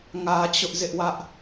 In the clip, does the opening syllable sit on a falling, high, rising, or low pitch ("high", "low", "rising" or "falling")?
high